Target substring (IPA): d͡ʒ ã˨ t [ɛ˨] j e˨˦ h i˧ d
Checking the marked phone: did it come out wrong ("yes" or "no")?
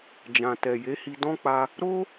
no